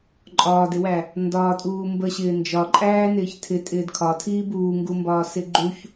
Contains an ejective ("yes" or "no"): yes